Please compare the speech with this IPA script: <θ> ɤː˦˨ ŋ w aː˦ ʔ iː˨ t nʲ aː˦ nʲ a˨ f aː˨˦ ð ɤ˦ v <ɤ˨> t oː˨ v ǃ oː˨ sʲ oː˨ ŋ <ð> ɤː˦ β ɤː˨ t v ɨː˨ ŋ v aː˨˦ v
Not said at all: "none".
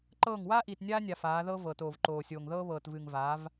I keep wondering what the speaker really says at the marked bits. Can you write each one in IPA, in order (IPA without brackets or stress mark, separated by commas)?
ǃ, ɤ˨, ð